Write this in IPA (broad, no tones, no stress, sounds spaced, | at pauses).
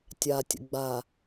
tʲ a tʲ ə̰ ɡ͡b a